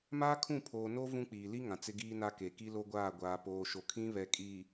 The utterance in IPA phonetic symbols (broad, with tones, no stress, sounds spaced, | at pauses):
m aː˦ kʰ ũ˦˨ pʰ oː˨ n o˦ v ũ˦ k͡p iː˨ l i˦ ŋ ã˨ t͡s ɪ˦ ɡ iː˦ n a˦ k e˨ k i˦ l o˦ ɡʷ aː˦˨ ɡʷ aː˨ p oː˨ ʃ o˨ kʰ ĩ˦ β ɛ˨ kʼ iː˨